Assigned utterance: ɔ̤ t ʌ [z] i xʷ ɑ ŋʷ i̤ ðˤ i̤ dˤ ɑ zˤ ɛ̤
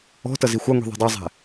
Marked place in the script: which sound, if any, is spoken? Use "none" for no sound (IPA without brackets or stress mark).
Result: z